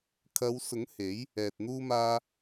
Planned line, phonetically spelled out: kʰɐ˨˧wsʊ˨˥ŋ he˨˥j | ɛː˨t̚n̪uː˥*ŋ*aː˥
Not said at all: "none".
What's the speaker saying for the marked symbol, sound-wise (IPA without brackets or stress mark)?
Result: m